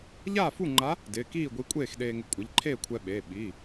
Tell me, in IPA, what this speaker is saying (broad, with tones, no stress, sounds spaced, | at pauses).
ʎ aː˥˨ f u˥˨ ŋ͡ǃ a˧˥ | d ɪː˩˧˩ k iː˥˨ ɡʷ i˧˥ kʷʼ eː˥˨ x ɗ eː˧ ŋ ɪ˧ kʷʼ ɪ˩˧˩ ʎ ǃʰ eː˥˨ kʷʰ ɛ˧ ɓ eː˩˧˩ ɓ i˩˧˩